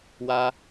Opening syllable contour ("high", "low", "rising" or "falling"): high